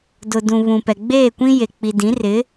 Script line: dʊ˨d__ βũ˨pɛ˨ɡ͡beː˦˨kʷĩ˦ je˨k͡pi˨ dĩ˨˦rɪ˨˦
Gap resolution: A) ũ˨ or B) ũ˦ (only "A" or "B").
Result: A